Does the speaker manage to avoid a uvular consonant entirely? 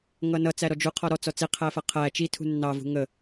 no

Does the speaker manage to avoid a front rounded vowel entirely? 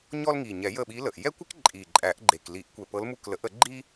yes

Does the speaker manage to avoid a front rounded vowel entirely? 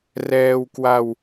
yes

